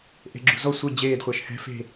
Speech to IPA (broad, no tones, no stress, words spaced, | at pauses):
ʔe̤ɡ͡ǁṳ zɔ sʷɯ d͡ʑeːdχʷɛʃ hɛ̤ fe̤